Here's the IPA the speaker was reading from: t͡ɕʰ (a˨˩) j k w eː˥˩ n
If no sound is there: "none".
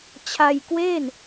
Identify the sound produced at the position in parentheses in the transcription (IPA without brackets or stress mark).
a˧